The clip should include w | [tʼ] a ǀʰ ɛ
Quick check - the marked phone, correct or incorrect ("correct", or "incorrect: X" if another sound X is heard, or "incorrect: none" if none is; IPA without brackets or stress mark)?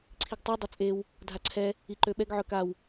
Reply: incorrect: dʱ